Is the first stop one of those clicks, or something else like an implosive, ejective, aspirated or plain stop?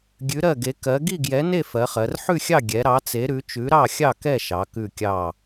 plain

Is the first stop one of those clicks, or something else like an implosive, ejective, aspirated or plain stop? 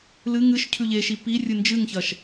aspirated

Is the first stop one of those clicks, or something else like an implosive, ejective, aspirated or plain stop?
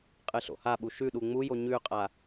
ejective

